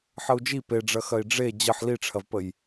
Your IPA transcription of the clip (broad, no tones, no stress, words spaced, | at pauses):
ħəu̯d͡ʒi peɖ͡ʐɐxɐi̯ ɖ͡ʐe d͡ʑəħ liʈ͡ʂʰɐvpəj